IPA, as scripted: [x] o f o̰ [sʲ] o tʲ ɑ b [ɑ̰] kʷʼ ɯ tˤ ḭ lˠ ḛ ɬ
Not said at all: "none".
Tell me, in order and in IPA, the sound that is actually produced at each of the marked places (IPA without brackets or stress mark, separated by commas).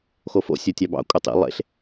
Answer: x, sʲ, ɑ̰